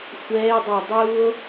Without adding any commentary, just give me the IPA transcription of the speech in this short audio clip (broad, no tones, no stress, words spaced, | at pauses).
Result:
xʷɛːe̯dˤæ dˤuːo̯